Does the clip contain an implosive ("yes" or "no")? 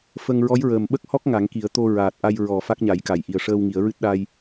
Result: yes